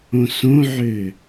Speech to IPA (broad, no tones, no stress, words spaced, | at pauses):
õsõʕø